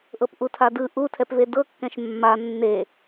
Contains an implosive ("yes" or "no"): no